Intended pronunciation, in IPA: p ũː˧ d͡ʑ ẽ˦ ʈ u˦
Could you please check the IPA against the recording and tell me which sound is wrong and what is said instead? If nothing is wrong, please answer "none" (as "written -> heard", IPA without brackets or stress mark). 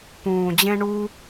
ʈ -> ɳ